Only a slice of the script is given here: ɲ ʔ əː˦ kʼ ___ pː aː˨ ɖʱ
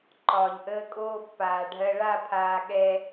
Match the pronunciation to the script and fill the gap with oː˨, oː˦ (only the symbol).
oː˦